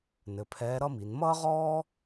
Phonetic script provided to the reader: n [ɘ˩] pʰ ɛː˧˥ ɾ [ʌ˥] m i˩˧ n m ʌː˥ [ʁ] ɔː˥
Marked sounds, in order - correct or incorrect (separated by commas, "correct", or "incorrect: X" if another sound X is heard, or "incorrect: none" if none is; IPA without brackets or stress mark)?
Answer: incorrect: ɘ˩˧, correct, correct